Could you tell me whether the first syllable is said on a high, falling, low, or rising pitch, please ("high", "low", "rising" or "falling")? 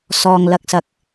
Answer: low